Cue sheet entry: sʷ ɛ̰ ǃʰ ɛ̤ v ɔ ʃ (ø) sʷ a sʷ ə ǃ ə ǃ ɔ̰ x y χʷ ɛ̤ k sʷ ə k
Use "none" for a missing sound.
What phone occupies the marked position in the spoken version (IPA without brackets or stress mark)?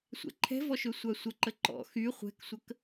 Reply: ø